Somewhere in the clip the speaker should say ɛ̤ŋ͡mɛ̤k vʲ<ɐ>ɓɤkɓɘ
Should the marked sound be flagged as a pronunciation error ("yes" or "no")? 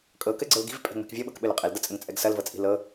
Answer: yes